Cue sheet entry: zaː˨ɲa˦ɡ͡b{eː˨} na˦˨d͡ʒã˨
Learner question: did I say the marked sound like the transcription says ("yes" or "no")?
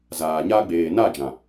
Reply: yes